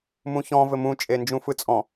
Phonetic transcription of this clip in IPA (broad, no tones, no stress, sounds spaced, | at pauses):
m ũ ç ɔ̃ v ɘ m ũ t͡ʃʼ e n d͡ʒ ũ f ɯ t͡sʼ ɔ̃